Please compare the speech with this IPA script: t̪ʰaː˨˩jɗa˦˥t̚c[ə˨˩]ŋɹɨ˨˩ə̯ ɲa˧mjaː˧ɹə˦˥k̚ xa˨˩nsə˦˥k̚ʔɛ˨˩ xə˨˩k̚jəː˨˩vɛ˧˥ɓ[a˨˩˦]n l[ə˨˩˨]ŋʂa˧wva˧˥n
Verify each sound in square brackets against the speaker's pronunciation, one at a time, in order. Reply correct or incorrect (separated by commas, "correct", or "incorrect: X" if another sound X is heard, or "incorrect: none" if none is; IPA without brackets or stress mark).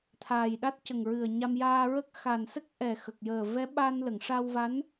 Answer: correct, incorrect: a˧, correct